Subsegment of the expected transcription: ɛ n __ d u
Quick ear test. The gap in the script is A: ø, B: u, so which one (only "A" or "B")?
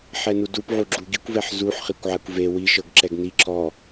B